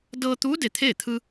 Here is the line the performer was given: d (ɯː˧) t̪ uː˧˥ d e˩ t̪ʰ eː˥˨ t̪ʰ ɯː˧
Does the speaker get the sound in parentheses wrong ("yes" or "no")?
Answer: yes